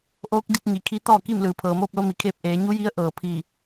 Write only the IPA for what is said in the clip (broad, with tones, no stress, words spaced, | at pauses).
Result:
ʔoː˧˥k̚di˧t̚ɲi˩ kʰi˧˥t̪ɔː˥˨ki˥˨m lɯː˩pʰɤː˩moː˥˨p̚lo˧ mi˩˧kʰeː˧p̚ʔeː˩˧ ɲu˧˥ji˧˥ə̯ ʔɤː˩pʰiː˧˩